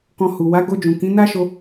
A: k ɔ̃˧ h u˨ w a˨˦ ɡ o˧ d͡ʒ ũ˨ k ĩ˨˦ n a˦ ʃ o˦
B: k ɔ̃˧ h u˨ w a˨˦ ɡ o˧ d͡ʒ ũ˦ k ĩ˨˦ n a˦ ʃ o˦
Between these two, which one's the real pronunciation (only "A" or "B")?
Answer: A